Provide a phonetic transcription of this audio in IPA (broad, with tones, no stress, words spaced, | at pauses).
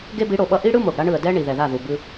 ɡe˦bi˨˦ɽo˨ɓʌ˦ ʔi˦ɽɯ˦ mo˨ɡɽa˦ɳɯ˨ə̯ dɛ˦ ɳi˨ðɛ˨ða˦˨ ðu˨bɯ˦